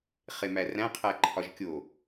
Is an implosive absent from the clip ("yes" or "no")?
yes